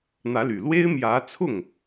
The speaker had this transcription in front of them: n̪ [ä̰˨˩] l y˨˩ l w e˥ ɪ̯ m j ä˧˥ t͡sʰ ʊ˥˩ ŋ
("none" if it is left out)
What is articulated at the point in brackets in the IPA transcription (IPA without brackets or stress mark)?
ä˧˥